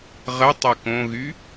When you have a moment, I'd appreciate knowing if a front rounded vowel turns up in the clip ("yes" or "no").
yes